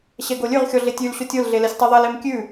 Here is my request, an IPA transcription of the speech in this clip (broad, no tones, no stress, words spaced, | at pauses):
ɕɛɡolʲʉʁxʲɔ ɮetʲʉlɕotʲ olɮe lɛsʲtˤɛðˤɛlem kʲʉ